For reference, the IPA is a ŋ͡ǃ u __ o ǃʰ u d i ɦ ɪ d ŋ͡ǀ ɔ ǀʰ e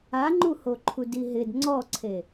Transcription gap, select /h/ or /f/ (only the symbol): h